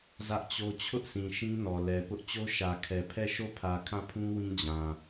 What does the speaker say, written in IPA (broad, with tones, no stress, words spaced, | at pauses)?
zä˦ʔt͡ɕo˦ t͡ɕʰʊ˦ʔsĩ˨ ʃĩ˦nɔ˨lɛ˨ pʊ˦ʔ t͡ɕo˦ʃä˨kʰɛ˨pʰɛ˦˨ ʃo˦˨pʰä˨kʰã˦˨pʰũ˦ wĩ˦d͡ʑã˨